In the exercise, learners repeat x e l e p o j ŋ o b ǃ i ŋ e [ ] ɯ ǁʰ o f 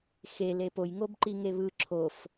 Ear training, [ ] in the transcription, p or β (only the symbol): β